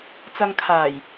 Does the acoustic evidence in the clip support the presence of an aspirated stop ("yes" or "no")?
yes